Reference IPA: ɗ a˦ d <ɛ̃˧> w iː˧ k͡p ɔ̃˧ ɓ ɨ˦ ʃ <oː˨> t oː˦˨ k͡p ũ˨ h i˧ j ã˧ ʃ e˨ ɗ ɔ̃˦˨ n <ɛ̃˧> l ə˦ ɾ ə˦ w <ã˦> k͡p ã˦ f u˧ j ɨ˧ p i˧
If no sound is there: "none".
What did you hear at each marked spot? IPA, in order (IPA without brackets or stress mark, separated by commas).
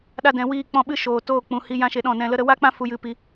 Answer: ɛ̃˧, oː˨, ɛ̃˧, a˦